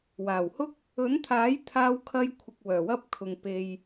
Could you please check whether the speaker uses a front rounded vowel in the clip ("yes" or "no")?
yes